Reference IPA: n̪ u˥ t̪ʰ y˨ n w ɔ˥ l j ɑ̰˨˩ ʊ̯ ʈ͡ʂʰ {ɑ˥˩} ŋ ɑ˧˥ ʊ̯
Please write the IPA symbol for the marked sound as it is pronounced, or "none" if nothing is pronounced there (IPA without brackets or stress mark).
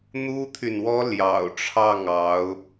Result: ɑ˥˩